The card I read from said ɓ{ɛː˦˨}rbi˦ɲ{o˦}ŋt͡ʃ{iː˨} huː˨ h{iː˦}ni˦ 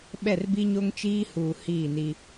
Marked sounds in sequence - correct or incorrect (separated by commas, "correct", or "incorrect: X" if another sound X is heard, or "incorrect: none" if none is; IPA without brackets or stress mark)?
incorrect: ɛ˦˨, correct, incorrect: iː˦, incorrect: iː˦˨